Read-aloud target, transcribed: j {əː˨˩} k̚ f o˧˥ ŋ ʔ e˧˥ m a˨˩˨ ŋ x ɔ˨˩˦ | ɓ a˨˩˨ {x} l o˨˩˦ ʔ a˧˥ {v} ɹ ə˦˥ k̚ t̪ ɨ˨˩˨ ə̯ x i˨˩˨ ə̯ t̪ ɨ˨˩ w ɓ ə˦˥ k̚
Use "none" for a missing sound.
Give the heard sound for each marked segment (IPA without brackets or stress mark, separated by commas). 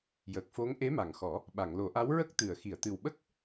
əː˨˩, ŋ, w